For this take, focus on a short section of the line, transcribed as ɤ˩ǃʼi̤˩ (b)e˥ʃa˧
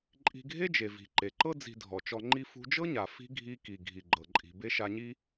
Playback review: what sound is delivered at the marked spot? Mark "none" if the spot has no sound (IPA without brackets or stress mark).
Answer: b